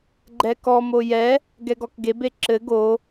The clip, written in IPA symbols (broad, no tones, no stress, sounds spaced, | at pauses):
ɡ͡ǃ ɛ k ɔ m o j ɛ | ɡ ɛ ɡ ɔ k ɡ e b e ǁ ɘ ɡ o